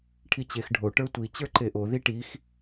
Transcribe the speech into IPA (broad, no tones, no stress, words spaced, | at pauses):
ʈʰit͡ɕex ɖʱo ʈə˞tʷi t͡ɕə˞ǃeʔo ðiʈix